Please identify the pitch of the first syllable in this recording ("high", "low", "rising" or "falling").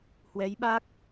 rising